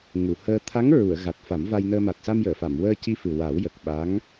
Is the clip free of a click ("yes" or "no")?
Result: yes